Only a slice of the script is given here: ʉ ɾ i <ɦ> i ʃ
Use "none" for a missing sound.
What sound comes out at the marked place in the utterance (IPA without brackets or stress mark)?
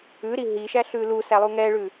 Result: ɦ